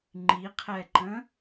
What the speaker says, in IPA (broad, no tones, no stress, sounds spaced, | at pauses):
ŋ͡ǃ i qʰ ɛ ǃ ə̃